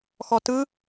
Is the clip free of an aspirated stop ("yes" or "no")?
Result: yes